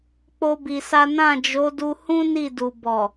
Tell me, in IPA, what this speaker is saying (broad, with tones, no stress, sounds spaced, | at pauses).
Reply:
k͡p o˦ b i˧ s a˦ n ã˦˨ d͡ʒ o˨˦ d u˧ h ũ˦ n i˦˨ d u˨ b ɔ˨